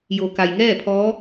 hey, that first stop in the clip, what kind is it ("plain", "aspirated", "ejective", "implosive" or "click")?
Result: plain